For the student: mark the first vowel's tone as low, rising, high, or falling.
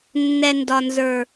low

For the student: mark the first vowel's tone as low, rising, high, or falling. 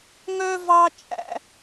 high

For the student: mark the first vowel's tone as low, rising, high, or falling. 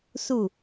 falling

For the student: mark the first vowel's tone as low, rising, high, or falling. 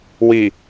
low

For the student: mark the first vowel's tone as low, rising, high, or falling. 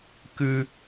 high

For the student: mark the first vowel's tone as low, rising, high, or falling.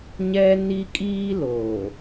high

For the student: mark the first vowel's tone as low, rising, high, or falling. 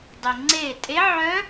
low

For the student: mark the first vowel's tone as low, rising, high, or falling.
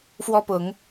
high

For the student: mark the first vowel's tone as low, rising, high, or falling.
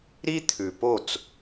high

